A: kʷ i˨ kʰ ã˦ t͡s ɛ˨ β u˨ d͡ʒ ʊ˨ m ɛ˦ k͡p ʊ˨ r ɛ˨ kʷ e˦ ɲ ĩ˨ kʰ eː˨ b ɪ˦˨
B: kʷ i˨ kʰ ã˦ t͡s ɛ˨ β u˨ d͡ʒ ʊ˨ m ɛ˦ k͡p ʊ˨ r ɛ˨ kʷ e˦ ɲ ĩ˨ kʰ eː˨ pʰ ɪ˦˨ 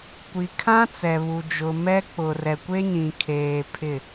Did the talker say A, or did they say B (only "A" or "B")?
B